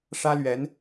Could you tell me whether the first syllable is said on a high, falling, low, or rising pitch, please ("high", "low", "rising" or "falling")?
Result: high